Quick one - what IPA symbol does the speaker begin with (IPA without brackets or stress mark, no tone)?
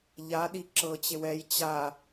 ʎ